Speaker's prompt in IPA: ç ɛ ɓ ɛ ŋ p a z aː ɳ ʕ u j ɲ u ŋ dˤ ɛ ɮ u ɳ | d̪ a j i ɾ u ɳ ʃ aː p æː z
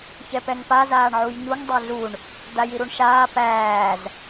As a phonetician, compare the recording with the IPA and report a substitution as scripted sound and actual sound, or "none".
ɓ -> p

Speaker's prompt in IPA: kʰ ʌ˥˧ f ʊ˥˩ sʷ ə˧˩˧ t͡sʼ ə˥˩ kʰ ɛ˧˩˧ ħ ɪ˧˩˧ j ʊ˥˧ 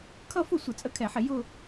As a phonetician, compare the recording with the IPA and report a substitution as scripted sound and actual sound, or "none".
none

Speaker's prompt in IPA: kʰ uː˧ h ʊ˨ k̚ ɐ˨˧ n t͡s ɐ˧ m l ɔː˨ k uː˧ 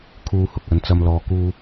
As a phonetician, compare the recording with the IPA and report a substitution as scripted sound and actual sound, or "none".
none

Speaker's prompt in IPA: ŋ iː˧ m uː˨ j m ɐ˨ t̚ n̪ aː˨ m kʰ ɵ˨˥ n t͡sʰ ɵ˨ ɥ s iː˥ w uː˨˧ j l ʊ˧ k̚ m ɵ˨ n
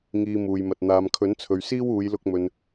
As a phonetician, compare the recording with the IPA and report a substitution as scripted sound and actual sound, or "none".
none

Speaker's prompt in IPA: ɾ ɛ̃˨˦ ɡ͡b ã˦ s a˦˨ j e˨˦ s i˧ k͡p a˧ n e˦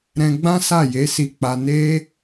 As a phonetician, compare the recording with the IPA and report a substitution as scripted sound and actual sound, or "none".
ɛ̃˨˦ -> ɛ̃˧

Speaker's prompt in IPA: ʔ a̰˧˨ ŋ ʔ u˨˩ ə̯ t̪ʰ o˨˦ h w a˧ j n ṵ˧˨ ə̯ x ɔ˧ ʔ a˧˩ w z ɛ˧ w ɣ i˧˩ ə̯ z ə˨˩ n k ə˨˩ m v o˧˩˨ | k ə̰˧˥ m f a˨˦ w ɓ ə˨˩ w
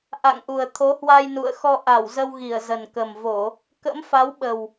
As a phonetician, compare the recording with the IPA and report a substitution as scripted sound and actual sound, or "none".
ɛ˧ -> ə˧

